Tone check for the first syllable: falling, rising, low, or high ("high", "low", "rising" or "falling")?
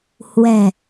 low